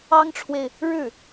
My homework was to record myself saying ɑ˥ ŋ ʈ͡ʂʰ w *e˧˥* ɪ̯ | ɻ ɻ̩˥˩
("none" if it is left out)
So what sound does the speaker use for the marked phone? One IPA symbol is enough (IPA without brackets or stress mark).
e˨